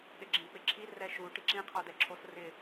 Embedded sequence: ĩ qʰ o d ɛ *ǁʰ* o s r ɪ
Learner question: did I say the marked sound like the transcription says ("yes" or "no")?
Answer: yes